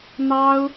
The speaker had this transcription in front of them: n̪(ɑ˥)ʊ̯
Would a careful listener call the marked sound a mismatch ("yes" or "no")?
no